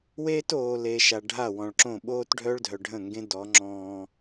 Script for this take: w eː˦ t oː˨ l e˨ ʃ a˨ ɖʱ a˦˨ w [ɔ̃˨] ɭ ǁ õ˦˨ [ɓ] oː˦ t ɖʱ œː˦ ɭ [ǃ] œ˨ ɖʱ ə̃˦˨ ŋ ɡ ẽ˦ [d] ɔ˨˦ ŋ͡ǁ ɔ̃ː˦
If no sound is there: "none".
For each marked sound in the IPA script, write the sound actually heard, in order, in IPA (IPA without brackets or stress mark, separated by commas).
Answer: ɔ̃˨, ɓ, dʱ, d